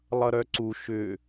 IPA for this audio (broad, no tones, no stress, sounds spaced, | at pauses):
lˠ ʌ ɾ œ ǀ u ʃ ʏ